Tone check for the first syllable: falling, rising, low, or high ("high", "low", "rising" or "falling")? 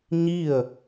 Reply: falling